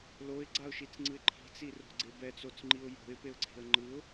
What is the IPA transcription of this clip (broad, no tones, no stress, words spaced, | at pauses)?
loɪ̯ɡ͡ǀaʊ̯ʃit͡sŋ͡ǀɯɪ̯ ǃʰi̤t͡siro̤ɡ͡ǀe bɛt͡sot͡sŋ͡ǃiʊ̯ jo̤ɪ̯peʊ̯ǀʰe̤ə̯ ŋ͡ǃɯʊ̯